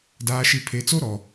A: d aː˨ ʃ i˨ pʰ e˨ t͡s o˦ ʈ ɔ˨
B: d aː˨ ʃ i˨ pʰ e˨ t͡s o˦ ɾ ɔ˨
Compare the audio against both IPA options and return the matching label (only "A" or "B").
B